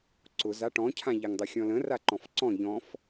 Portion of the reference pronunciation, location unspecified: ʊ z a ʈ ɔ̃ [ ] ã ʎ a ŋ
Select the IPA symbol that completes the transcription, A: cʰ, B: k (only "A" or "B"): A